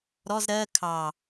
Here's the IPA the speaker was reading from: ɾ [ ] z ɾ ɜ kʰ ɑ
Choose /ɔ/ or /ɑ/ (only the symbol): ɔ